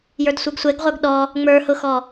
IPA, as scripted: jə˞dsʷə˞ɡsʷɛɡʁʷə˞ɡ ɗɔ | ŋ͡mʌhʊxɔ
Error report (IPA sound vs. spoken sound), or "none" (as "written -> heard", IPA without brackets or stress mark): ʌ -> ə˞